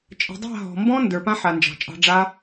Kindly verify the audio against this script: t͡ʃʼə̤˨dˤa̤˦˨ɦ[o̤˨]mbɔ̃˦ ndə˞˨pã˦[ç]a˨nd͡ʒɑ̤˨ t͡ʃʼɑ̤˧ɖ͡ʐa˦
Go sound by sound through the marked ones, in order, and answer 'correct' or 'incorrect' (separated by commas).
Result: incorrect, incorrect